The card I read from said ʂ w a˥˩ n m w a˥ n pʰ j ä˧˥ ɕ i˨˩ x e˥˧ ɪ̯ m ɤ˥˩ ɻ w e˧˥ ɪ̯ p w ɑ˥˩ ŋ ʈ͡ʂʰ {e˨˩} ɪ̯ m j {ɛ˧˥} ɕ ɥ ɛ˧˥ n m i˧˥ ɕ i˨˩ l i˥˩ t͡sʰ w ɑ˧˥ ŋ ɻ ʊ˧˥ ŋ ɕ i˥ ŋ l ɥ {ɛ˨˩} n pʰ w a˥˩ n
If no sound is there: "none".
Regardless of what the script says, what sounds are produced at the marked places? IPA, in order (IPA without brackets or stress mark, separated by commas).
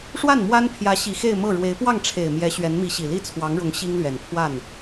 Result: e˨˩, ɛ˧˥, ɛ˨˩